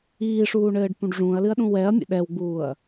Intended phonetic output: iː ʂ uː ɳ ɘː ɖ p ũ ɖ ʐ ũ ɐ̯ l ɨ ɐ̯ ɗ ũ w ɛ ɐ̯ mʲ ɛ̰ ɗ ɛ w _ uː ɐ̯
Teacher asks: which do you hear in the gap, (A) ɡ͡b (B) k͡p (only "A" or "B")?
A